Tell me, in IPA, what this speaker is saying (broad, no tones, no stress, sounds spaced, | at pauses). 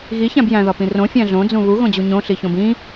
ɣ i ç æ̃ b j æ̃ ð ɒ p ĩ r õ fʲ æ̃ ɮ õ d͡z ũ β u ɣ õ d͡ʑ u ɲ õ ɬ i ç õ b ĩ